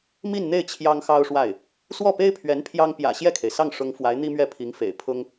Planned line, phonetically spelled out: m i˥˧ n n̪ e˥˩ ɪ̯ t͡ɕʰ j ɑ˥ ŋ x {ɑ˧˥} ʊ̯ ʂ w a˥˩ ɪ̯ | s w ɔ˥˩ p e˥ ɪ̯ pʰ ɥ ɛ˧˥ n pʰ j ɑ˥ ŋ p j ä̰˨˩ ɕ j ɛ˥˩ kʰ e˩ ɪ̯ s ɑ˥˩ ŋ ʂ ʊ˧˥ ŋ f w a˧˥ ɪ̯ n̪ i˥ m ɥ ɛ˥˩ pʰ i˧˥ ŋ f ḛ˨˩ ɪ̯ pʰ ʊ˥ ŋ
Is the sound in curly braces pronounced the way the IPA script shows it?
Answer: no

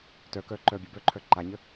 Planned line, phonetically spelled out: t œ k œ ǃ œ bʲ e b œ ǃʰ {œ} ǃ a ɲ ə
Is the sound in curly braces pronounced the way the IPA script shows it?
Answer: yes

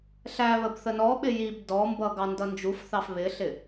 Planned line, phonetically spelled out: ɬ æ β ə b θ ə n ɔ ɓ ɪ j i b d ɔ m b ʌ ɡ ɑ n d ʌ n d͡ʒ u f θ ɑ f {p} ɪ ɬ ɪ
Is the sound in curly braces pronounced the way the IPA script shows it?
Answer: no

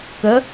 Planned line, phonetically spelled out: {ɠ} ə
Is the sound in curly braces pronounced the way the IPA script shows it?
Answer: no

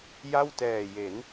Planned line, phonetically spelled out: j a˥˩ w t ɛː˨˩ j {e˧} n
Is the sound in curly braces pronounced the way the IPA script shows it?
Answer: no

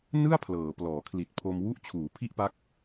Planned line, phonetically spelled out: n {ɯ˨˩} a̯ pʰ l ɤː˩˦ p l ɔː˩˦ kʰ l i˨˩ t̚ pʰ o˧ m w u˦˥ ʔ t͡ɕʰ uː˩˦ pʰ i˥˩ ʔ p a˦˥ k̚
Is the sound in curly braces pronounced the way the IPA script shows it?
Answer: no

